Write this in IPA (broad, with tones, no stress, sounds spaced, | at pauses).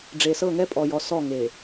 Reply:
ɖ͡ʐ e˨ s ɤ˦˨ ŋ ɛ˦ pʼ ɔ˨ j ɔ˨ s ɔ˦˨ ŋ e˨